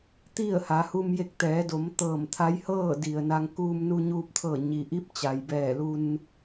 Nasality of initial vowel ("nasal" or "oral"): oral